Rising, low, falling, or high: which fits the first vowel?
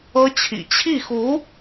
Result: high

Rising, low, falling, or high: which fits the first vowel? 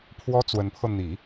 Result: high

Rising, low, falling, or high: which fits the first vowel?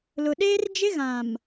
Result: low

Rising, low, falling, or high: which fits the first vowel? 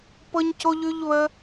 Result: high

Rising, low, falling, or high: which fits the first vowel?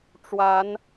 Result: rising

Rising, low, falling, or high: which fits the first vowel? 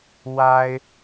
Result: high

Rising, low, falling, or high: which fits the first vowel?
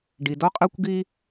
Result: low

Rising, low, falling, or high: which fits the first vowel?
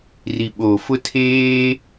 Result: low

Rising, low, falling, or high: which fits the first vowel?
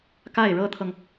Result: falling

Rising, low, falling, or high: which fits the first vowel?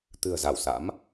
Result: low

